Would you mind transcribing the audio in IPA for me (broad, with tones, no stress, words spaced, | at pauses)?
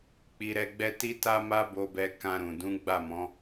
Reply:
k͡pi˧ɾɛ˧ɡ͡bɛ˦ ti˦ ta˦ma˦bo˧bɛ˧ kã˧ɾũ˨ dũ˨˦ɡ͡ba˦˨mɔ̃˨˦